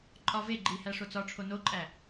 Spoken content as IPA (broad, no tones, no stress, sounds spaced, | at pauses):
ǃʼ ɒ v e ɡ͡ǃ i h æ ʂ o t͡s ɒ ʈ͡ʂʰ o n o ǃʼ æ